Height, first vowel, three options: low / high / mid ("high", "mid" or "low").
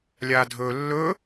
low